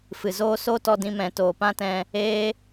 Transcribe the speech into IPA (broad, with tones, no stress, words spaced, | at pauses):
fɨ˨zoː˦ so˦tɔ˧dĩ˧ mɛ̃˨toː˨pã˦tɛ̃˧ | eː˦